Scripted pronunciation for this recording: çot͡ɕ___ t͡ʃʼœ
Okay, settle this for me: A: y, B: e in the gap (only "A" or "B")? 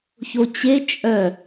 B